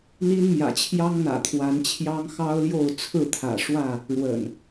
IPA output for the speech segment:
n̪ i˦ n m j ä̰˨˩ t͡ɕʰ j ɑ˦ ŋ n̪ ä̰˨˩ t̪ʰ w a˨˦ n t͡ɕʰ j ɑ˦ ŋ x ɑ˦ ʊ̯ l j o˥˨ ʊ̯ t͡sʰ ɹ̩˥˨ t̪ʰ ä̰˨˩ ʂ w ä˥˨ | ɻ w ə̰˨˩ n

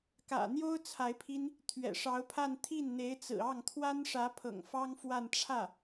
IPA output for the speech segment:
k ä̰˨˩ n̪ j o˥ ʊ̯ t͡sʰ a˧˥ ɪ̯ pʰ i˥ n | t̪ʰ ɥ ɛ̰˨˩ ʂ ɑ˧˥ ʊ̯ pʰ a˥˧ n t̪ʰ i˥˩ n n̪ e˧˥ ɪ̯ t͡s ɹ̩˨˩ ɑ˥˩ ŋ t̪ʰ w a˥ n ʂ ä˧˥ pʰ ɤ̰˨˩ ŋ f ɑ˥ ŋ f w a˥˧ n ʈ͡ʂʰ ä˥˩

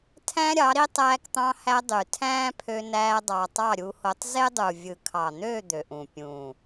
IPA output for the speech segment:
tʰ æ̃˦ ɾʲ ɑ˨˦ ɾ i˦ tˤ æː˧ k t̪ ɑ̃˧ h æ˧ dˤ y˨ tʰ æ̃ː˦ pʰ ø˧ n æː˧ dˤ ɑ˧ tˤ ɑ˦˨ ɾʲ u˧ h o˧ tˤ z e˦ dˤ u˨ vʲ ɯ˨ kʰ ɑ˨ n̪ ø˦˨ d̪ ø˨ ʔ ũ˨ pʲ ũː˨

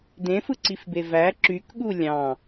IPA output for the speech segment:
d ẽ f ɯ ǀ i f b e v æ ǁ y k ɠ u lʲ ɑ̃

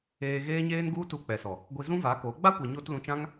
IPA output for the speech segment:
eː˧ ɣ eː˦ ɲ eː˦ n ɡ u˦ t u˧ k͡p ɛ˨ s ɔ˨ | ɡʷ i˧ z ũ˦ v a˨˦ k o˨˦ ɡ͡b a˦ kʷ ɛ˨ ɲ oː˧ t l ũ˧ t͡ʃ ã˦ ŋ

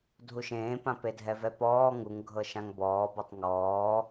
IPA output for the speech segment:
dʱ u ʃ ẽː p ã p e dʱ ɛ v ɛ p ɔː ŋ u ŋ ɡʱ ɤ ʃ ã ŋ b ɔː b o tˤ ŋ ɔː

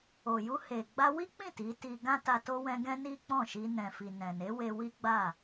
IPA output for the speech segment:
o˨ j u˧ h e˨ ɡ͡b a˧ w i˦ k͡p ĩ˦˨ t i˨˦ t i˧ ɡ ã˦ t a˧ t o˧ w ɛ̃˧ ɡ ɛ̃˦ n i˦ k͡p ɔ̃˦˨ ʃ i˧ n ɛ̃˨ f i˨ n ɛ̃˨ n e˨˦ w e˦ w i˦ ɡ͡b a˦˨

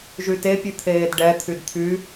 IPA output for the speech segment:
ʒ y t e pʲ ʉ t̪ʰ eː d ɖ ɛ t̪ʰ y d t̪ʰ y

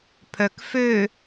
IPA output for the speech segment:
pʰ œ k f ø

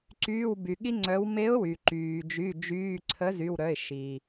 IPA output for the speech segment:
ǀ yː˩˧˩ w b y˩ ɠ i˧ ŋ͡ǀ œ˩˧ w m e˨˥ ʊ̯ w y˩ ǃ yː˩ d͡ʒ y˩˧˩ d͡ʒ yː˩˧˩ ǀʰ ə˨˥ z y˩˧˩ w ɾ œ˩˧˩ ɪ̯ ʃ i˩

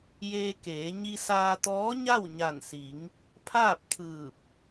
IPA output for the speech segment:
j eː˧ k eː˩˧ ɲ i˧ s aː˧ t̪ ɔː˧˥ ɲ a˥˨ w ɲ a˧˩ n s i˩˧ ŋ | pʰ aː˥˨ p̚ t̪ʰ ɯː˧˩ p̚

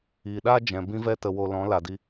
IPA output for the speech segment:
iː˨ ɗ aː˦ d͡ʒ ɛ̃˨ b ĩ˧ v ɛ˧ t ə˨ w o˨ l ɔ̃˨˦ l a˨ d i˧

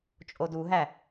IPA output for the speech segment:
t͡ʃʼ o d u ɦ æ

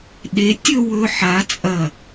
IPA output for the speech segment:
ɗ e˨˥ tʲ ɵ˥˧ w ɵ˧ ħ a˨˥ t͡sʼ ɐ˧˩

